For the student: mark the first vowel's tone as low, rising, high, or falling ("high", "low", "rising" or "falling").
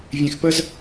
low